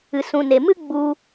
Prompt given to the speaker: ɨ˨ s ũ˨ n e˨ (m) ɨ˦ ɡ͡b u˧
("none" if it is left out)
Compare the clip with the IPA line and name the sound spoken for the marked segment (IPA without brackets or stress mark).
m